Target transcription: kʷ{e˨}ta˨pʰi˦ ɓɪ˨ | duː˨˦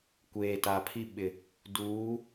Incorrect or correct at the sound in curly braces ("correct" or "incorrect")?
incorrect